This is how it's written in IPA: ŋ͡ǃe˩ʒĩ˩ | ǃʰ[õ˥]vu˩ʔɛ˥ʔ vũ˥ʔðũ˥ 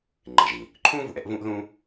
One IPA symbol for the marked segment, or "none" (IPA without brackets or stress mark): ũ˥